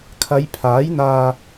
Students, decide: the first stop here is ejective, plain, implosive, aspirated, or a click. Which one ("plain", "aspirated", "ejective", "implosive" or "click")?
aspirated